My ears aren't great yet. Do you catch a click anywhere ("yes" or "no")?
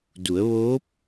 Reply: no